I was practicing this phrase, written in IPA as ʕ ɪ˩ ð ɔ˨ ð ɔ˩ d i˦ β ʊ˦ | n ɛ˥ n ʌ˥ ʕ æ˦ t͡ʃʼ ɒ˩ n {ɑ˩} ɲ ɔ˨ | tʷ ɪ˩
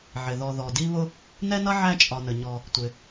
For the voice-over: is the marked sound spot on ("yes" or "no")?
no